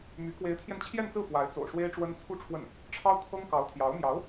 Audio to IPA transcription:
m y˧˥ k w e˧˥ ɪ̯ t̪ʰ j ɛ˧ n t͡ɕʰ j ɛ˥˧ n t͡s ɹ̩˥˩ f w a˧˥ ɪ̯ t͡s o̰˨˩ ʊ̯ ʂ w e˥ ɪ̯ ʈ͡ʂ w ə˥ n t͡sʰ u˥ ʈ͡ʂʰ w ə˥˩ n | ʈ͡ʂʰ ɑ˥ ʊ̯ kʰ ɤ˥ ŋ k ɑ˧˥ ʊ̯ t̪ʰ j ɑ˧˥ ʊ̯ m j ɑ˧˥ ʊ̯

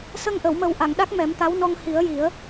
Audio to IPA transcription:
s ə˧ ŋ ʔ ə˨˩˨ w m ə˨˩˦ w ʔ a˨˩˨ ŋ ɗ a˦˥ k̚ m ɛ˨˩˦ m t̪ a˧˥ w n ɔ˧ ŋ h i˨˩˦ ə̯ j i˨˩˦ ə̯

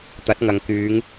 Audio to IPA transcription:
t̪ ɐ˨˥ t̚ ŋ ɐ˨ ŋ k yː˨˧ ŋ

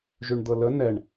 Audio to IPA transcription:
ʒ y ɳ d̪ ɤ l ə n ɛ ɳ

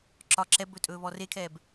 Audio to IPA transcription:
ǁ ɒ ǁ ɛ b ɵ tʼ ɵː β ɔ r e kʰ ɛː b

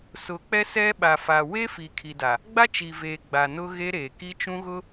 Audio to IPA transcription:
s ʊ˨˦ k͡p ɛ˦ s ɛ˦ ɓ a˨ f a˨ w e˦ f i˨ kʰ i˨ d a˨ | ɡ͡b a˦ t͡ʃ i˨ v eː˨ ɡ͡b a˨ n ʊ˦ ɣ e˦ ɾ eː˨ k i˦ t͡ʃ ũ˦ ɣ ʊ˦

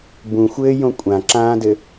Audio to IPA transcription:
b ũ xʷ ɘː j õ kʷʼ ã ǁ ãː d ɘ

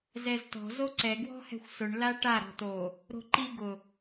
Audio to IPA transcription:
z ɛ z t ɔ̤ z o ǀ ɛ ɡ w ɔ̤ h ɛ̤ xʷ s ʊ ɳ l a ʈ a ɾ ɔ̤ t o | ɾ o̤ ǃ i ɡ ʊ

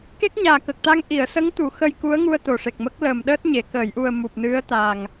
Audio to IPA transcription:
k e˦˥ k̚ ɲ aː˨˩ k ə˨˩ k̚ t̪ a˧ ŋ ʔ i˨˩˨ ə̯ s ə˧˥ ŋ t̪ u˨˩˨ x ə˧ j k u˧˥ ə̯ ŋ u˧ ə̯ t̪ o˨˩ ʂ e˨˩ k̚ m ə˦˥ k̚ l əː˨˩ m ɗ əː˦˥ t̚ ɲ e˨˩˨ k əː˨˩˨ j ʔ u˨˩ ə̯ m u˨˩ p̚ n ɨ˧˥ ə̯ t̪ a˨˩ ŋ

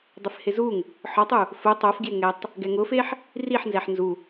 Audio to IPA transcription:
dˤ ɪ f h ɪ z u ŋ | ħ ɔ tˤ u | f ʊ tˤ o f ɡ j ɪ ŋ ɛ tˤ | ɡ ɛ ŋ ʊ f e ħ | r i ħ n z ɛ ħ n z u

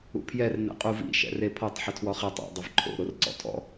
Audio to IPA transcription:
ṵ pʰ j ɛ r n ɛ̰ qʼ u v ḭ ʃ ɛ̰ r e pʰ ɔ tˤ ħ ɪ tʰ w ɔ χ ɛ tˤ ɛ̰ dˤ ɪ v ǃʰ o̰ ɾ o r ǀ ɔ̰ tʰ ɔ̰

